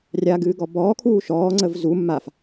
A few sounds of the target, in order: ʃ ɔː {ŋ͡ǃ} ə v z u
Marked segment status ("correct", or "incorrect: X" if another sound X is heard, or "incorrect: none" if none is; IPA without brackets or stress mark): incorrect: ŋ͡ǀ